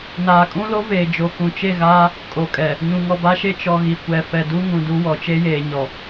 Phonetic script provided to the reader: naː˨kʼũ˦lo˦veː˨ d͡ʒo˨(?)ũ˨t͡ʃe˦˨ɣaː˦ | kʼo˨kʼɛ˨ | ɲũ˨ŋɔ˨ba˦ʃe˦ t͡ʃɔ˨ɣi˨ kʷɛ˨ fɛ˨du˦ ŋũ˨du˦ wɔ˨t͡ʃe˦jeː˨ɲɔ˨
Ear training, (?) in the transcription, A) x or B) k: B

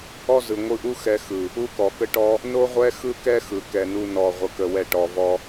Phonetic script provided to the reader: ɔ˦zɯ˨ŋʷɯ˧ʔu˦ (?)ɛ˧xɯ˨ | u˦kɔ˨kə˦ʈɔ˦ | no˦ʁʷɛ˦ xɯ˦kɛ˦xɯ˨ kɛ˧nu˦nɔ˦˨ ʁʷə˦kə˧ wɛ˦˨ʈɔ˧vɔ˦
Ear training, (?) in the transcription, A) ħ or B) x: B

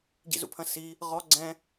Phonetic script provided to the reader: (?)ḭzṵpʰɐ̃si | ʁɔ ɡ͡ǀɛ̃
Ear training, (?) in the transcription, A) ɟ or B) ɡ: A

